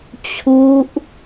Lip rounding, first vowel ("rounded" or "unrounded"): rounded